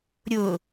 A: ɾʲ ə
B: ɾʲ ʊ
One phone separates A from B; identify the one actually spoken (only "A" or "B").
B